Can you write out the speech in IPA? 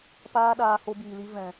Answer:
p aː˦ ɗ aː˧ h o˧ b iː˨ l i˧ v ɛ̃˨

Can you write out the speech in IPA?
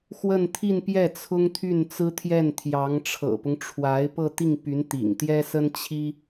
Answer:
x w ə˥˧ n t̪ʰ i˥˧ n p j ɛ˥˩ t͡sʰ ʊ˥ ŋ t̪ʰ y˥˩ n t͡s ɹ̩˥ t̪ʰ j ɛ˥˩ n t̪ʰ j ɑ˧˥ ŋ ʈ͡ʂʰ ɤ̰˨˩ p ʊ˦ ŋ ʈ͡ʂʰ w a˧˥ ɪ̯ p ɤ˥˧ t̪ i˥˩ ŋ p y˧˥ n t̪ ḭ˨˩ ŋ t̪ j ɛ˥ s ə˥ n t͡ɕʰ i˥

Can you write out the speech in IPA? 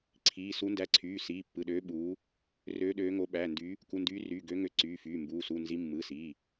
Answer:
ǀʰ iː˩˧˩ s u˨˦ n d æ˨˦ ǀʰ yː˩˧˩ s iː˩˧˩ pː ɯ˩˧˩ ɗ øː˨˦ ɓ uː˨˦ | r øː˨˦ ɗ øː˨˦ ŋ o˨˦ ɓ æ˩˧˩ n d y˨˦ | k u˩˧˩ n d yː˨˦ r yː˩˧˩ ɡ ø˨˦ ŋ ø˨˦ ǀ yː˩˧˩ f yː˩˧˩ m b uː˩˧˩ s u˩˧˩ n z i˨˦ mː ɯ˩˧˩ s iː˩˧˩

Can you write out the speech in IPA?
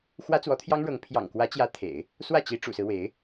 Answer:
x w ä˥ t͡s w ɔ˧˥ t̪ʰ j ɑ˥ ŋ ɻ ɤ˧˥ ŋ pʰ j ɑ̰˨˩ ŋ k w ä˧˥ t͡ɕ j ä˧˥ t̪ʰ ḛ˨˩˦ ɪ̯ | s w ä˥˩ t͡ɕ i˧˥ ʈ͡ʂ ṵ˨˩ s ɹ̩˦ w e˧˥ ɪ̯

